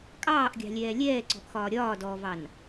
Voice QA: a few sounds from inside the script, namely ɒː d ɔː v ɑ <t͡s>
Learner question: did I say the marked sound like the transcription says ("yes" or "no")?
no